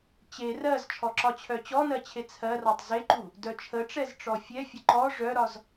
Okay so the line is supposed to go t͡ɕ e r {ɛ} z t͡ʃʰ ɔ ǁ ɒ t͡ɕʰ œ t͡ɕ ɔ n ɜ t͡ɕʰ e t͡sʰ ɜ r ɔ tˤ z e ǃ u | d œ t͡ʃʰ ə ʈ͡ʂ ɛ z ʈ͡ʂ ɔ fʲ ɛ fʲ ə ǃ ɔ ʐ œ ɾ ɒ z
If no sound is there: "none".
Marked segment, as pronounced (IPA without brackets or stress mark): ɜ